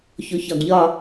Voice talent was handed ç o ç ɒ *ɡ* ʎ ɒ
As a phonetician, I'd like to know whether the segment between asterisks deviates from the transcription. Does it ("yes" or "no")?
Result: no